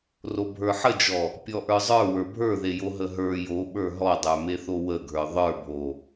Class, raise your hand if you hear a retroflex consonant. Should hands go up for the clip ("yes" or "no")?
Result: no